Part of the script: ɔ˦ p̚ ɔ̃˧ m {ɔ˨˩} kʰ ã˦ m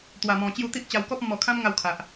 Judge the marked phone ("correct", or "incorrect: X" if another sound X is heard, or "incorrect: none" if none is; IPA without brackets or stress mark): correct